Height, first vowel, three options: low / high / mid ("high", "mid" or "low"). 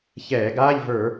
mid